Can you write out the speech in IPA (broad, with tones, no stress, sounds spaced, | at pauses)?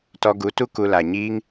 t ɔ˧ ɡ u˨˦ t u˦ k u˧ l a˨ ɲ iː˦ ŋ